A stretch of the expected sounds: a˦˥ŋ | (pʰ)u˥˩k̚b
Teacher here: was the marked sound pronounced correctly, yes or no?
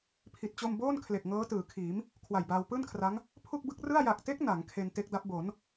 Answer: yes